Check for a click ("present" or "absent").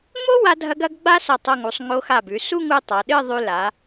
absent